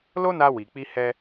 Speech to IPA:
l o˦ n a˧ w i˨ k͡p i˧ h ɛ˧

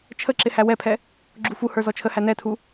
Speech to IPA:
t͡ʃʰ ə ǁ ɪ h æ w ɛ pʰ ɛ | ɡ͡ǁ u f u h ə˞ z ɔ t͡ʃʰ ə h æ n ɛ tʰ u

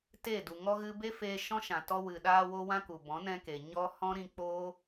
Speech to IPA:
t e˦˨ d u˨ ŋ ɔ˦ ɣ ɨ˧ b e˦ f eː˧ ʃ ɔ̃˦ ʃ ã˨ t ɔ˧ w ɨ˨ ɗ aː˧ w o˧ w ã˦ k u˨ b ɔ̃˨˦ n ɛ̃˧ k e˨ ɲ ɔ˦ h ɔ̃˦ ɾ ĩ˧ k͡p oː˦

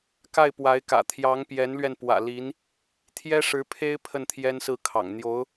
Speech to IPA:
k a˥˩ ɪ̯ p w a˧˥ ɪ̯ k ä̰˨˩ t̪ʰ j ɑ˧˥ ŋ p j ɛ˧˥ n l ɥ ɛ˧ n p w ä̰˨˩ l i˧˥ n | t̪ʰ j ɛ˥ ʂ ɻ̩˧˥ pʰ e˥ ɪ̯ pʰ ə˥˩ n t̪ʰ j ɛ˥ n s ɹ̩˥˩ kʰ ɑ̰˨˩ ŋ n̪ j o˧˥ ʊ̯

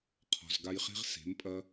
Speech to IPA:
qʰ ɔ̤˨ z ɡ a˧ j χ e̤˦ ʁ s e̤˨˦ m pʼ ɐ˦

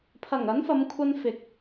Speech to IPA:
pʰ ɐ˨˩ ŋ ɐ˨˥ n f ɐ˨˧ m kʷʰ ɐ˧ n f ɪ˨ k̚

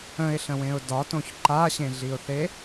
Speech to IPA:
ə̃ ɪ̯ ɬ ə̃ w ẽ ʊ̯ d ɒ t õ ç ǃ a ɕ ẽ ɮ i ʊ̯ θ e

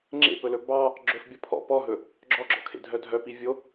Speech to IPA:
ŋ͡ǁ ḛ p ɵ l ɵ b ɑ | ɡ͡ǁ ɵ f bʲ ɔ pʰ ɔ̰ p ɔ ɦ ɵ | ɡ͡ǁ ɔ ɡ͡ǁ ɔ̰ kʰ ḛ dʱ œ dʱ œ p i vʲ o

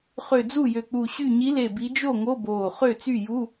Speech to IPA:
χ ø˧˩ d͡z u˥˩ j ø˧˩ k͡p u˧˩ ɕ y˧˩ ɲ i˨˦ l e˧˩ b i˨˦ d͡ʒ o˥˩ ŋ o˧˥˧ b oː˧˩ χ ø˥˩ t͡s y˥˩ j u˧˥˧

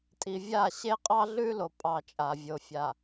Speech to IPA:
tʼ i˨ vʲ a˦˨ ɕ e˦ qʼ ɑ˦ ɮ ʉ˦ l o˨ pʼ ɑ˨ t͡ʃʼ a˨ vʲ o˨ fʲ a˨

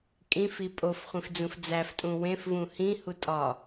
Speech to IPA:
kʼ ĩ f i pʼ o f χʷ ĩ f d͡z ũ f d͡z æ f tʼ ũ w ẽ f v ũ h ĩ h u tʼ ɒ

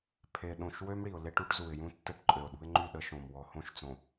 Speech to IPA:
pʰ e˨ ɗ õ˨ ʃ w ø˦ m ɽ i˨ ʊ̯ l e˦ ʈ u˦ ʈ z u˨ ɪ̯ j ũ˦ tː ɛ˦ ʈ ǃʼ ø˨ ʊ̯ ɗ ṳ˦ ɪ̯ ŋ͡ǃ y˦˨ ɗ ə˦ ʃ õ˨ m w ɔ˨ h õ˦˨ ʃ t͡s õ˨

